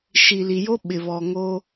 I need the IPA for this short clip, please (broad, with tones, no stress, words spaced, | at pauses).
ʃi˨li˨ jo˦ ɓɪ˨βɔ˨ŋo˦